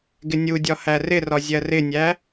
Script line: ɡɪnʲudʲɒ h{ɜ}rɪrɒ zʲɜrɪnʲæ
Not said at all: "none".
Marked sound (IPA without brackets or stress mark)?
æ